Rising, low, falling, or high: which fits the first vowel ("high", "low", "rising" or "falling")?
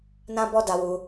high